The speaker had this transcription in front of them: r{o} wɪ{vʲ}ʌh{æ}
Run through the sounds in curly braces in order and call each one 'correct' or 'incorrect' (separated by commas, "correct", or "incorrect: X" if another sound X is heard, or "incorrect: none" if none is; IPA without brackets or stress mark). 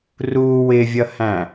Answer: incorrect: u, correct, incorrect: æ̃